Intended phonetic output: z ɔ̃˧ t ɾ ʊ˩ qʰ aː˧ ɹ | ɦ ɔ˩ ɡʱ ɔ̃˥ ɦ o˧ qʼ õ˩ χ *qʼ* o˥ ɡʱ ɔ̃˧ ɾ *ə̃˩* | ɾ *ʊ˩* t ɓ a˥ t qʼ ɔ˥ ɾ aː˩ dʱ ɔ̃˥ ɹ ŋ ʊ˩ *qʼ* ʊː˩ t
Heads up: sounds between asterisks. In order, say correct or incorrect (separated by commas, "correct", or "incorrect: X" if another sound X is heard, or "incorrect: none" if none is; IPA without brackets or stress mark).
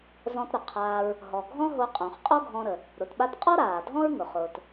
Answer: correct, incorrect: ə˩, correct, incorrect: χ